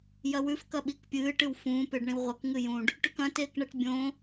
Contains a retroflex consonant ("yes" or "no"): yes